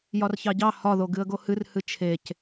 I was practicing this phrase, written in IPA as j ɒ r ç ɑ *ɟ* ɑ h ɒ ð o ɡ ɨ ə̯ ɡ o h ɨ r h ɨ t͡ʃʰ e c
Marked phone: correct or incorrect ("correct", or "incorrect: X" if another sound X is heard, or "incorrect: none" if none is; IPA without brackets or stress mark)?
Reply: correct